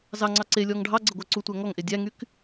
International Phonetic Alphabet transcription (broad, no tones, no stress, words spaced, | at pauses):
zɑŋ͡ǀɑ ǀelʲɔŋ ɖʱɑɡ͡ǀɘ ɡʷæǀutʷæ ŋɔŋʔe dʲæŋyk